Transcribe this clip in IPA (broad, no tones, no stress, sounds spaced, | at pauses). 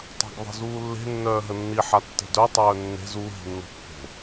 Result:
tˤ a̤ ɡ ðˤ e̤ z uː lː e̤ nː œː ɦ ə nː i ħ a tː e̤ d œ tˤ œː nː e̤ z u ɦ i̤ nː o̤ pː o̤